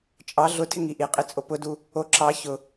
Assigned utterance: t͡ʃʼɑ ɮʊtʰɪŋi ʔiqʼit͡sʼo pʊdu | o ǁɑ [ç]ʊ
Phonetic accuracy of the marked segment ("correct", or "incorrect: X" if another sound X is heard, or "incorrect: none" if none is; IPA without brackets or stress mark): correct